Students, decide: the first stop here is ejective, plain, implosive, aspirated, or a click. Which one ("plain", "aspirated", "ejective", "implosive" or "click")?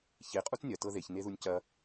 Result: ejective